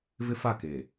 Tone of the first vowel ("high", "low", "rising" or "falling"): high